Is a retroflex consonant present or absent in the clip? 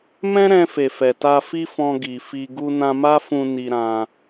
absent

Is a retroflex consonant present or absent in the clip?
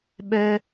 absent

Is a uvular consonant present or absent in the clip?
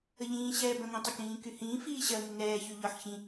absent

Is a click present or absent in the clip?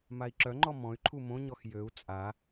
present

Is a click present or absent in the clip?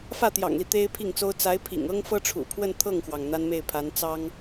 absent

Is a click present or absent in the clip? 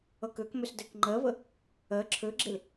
present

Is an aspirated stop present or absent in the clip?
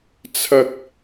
present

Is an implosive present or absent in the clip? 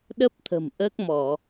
present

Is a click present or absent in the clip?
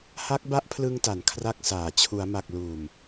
absent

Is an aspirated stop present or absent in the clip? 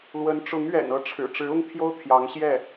present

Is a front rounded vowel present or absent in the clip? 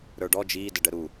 absent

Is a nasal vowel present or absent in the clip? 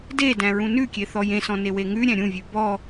present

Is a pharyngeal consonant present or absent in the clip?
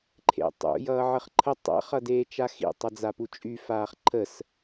present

